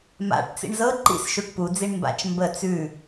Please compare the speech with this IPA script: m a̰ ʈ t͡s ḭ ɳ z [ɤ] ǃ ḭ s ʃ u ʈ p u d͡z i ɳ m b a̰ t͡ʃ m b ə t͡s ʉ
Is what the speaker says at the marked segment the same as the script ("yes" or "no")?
yes